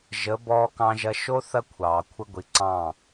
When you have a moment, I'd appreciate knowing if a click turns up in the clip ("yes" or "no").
yes